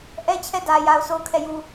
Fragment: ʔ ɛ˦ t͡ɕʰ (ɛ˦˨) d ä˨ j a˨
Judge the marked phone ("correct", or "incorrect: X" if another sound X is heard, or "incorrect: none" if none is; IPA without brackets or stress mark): correct